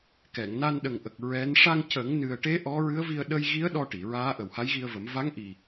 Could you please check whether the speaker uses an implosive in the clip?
yes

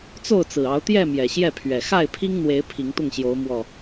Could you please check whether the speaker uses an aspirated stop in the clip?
yes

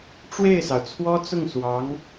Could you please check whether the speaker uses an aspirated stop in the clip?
yes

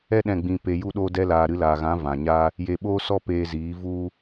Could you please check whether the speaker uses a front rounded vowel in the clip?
no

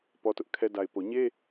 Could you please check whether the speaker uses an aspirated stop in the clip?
yes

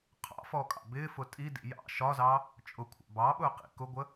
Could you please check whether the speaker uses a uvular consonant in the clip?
yes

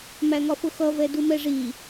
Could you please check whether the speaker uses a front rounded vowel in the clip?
no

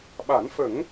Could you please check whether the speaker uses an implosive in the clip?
yes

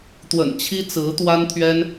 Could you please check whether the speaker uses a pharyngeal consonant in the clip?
no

